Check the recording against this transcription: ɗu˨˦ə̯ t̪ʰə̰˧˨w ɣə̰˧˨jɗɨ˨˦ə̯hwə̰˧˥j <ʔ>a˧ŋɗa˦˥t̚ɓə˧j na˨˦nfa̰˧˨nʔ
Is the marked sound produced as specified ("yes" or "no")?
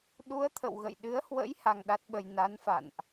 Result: no